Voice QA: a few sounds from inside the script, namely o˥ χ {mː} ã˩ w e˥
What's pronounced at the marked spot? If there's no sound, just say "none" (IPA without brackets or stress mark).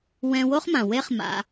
m